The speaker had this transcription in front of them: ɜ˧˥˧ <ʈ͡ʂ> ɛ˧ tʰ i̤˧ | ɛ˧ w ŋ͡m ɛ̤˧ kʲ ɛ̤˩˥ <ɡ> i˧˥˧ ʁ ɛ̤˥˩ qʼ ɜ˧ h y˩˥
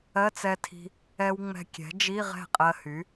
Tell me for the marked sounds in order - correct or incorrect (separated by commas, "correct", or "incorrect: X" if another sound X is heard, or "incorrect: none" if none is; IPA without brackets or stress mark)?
incorrect: t͡s, incorrect: d͡ʒ